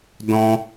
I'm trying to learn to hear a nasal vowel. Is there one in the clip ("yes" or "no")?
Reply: yes